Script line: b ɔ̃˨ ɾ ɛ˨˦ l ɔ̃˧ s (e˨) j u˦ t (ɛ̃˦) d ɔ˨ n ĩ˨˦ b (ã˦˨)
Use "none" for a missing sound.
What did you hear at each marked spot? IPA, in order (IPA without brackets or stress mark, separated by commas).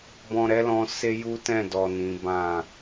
e˦, ɛ̃˦˨, ã˦˨